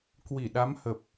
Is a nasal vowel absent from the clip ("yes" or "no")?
yes